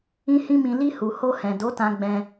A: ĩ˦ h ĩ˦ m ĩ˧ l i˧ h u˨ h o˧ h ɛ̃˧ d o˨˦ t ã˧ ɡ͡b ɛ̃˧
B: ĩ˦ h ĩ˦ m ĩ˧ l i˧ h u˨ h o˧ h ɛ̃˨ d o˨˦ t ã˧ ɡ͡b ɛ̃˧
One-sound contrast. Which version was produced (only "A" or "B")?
B